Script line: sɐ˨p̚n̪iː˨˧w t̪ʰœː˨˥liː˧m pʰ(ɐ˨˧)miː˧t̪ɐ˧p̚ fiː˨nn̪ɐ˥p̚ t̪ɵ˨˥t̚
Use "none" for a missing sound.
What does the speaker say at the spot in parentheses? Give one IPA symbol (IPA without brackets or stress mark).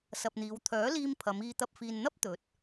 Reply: ɐ˨˧